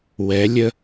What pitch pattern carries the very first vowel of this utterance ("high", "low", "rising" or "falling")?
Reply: rising